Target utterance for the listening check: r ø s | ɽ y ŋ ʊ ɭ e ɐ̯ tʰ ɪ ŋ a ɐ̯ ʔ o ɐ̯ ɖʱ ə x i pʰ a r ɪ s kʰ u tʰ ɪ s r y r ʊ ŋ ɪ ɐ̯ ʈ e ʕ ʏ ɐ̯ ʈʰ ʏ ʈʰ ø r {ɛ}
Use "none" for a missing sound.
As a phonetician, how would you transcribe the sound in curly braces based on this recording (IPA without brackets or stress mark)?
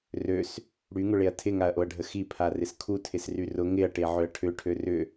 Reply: ʏ